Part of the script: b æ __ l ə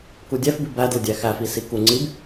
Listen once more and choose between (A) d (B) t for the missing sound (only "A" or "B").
A